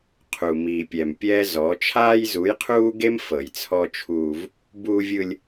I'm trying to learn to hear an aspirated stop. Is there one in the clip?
yes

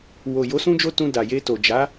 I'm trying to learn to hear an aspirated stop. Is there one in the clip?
no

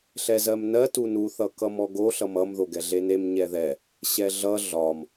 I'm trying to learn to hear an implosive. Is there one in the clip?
no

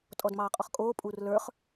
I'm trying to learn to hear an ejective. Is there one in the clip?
yes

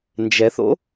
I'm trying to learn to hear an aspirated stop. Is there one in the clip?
no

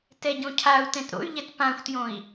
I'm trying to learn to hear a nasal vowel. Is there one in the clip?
yes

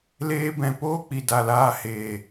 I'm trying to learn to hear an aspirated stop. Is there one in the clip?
no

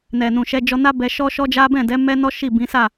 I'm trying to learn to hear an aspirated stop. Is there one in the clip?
no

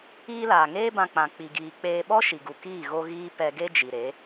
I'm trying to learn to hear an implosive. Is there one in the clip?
yes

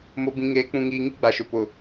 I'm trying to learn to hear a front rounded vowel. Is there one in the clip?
no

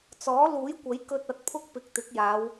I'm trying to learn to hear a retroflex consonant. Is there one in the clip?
no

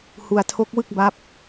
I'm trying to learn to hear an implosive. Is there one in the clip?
no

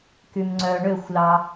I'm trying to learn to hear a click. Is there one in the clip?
yes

